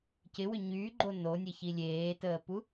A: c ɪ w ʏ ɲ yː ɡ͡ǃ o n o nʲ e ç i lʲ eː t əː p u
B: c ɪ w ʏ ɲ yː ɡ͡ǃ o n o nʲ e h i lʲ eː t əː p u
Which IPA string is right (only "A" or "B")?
A